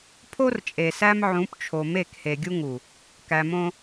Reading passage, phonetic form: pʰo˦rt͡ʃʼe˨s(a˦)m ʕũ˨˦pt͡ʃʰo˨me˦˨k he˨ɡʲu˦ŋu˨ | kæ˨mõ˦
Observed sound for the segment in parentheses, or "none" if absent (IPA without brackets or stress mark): æ˦